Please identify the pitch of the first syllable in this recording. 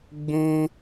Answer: high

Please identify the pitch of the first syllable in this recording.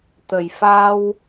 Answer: low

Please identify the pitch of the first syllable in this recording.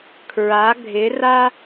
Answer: rising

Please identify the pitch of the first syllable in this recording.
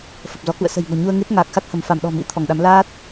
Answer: low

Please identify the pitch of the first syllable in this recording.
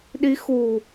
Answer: rising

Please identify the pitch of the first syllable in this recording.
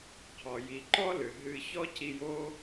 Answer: low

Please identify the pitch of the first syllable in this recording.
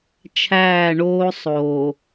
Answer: falling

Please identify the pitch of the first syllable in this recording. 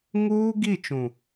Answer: high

